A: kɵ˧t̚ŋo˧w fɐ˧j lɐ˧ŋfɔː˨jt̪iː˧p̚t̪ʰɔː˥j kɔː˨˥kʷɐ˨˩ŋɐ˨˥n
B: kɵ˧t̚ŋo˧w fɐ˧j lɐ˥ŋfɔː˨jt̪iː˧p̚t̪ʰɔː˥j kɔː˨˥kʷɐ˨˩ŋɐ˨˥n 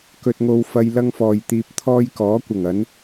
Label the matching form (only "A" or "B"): B